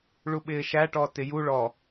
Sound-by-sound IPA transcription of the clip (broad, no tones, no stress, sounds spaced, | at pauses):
ɭ u ɓ ɪː ʃ æ ʈ ɔ t ɪ j u ɭ ɔ